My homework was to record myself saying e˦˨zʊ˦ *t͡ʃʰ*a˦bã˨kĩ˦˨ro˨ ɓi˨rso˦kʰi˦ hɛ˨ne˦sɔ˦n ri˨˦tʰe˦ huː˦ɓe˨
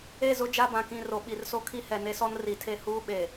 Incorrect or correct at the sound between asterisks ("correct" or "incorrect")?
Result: incorrect